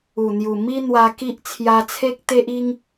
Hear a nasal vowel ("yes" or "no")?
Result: no